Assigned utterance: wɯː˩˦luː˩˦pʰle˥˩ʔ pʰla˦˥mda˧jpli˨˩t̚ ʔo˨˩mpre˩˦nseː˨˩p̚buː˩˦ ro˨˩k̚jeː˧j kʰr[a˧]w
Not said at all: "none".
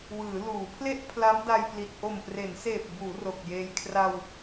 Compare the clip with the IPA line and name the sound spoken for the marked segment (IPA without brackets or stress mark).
a˧